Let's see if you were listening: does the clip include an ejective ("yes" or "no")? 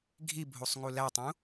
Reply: no